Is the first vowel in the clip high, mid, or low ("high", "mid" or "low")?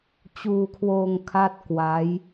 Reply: high